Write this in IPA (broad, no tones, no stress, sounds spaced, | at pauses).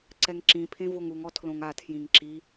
ǀ ɛ ŋ ǁ ĩ pʰ ẽ v o ŋ u ŋ ɔ tʰ l õ ŋ a tʰ j ĩ ŋ ǁ i